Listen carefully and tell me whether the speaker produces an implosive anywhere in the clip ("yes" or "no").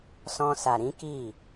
no